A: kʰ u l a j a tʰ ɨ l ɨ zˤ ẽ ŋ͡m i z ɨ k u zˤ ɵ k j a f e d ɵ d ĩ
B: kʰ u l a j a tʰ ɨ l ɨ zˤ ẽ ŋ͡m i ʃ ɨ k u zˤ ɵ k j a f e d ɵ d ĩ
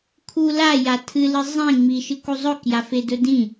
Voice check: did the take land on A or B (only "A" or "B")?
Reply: B